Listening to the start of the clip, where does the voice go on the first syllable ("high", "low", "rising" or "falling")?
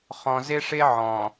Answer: low